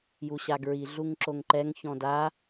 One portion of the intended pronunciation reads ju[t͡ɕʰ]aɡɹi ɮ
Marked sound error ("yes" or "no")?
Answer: yes